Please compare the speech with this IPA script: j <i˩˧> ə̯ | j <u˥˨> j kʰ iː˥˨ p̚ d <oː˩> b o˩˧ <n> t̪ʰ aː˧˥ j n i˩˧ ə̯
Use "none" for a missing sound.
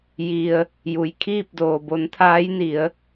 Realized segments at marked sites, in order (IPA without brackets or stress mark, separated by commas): i˩, u˩, oː˩, n